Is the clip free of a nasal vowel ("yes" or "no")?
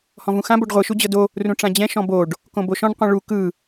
no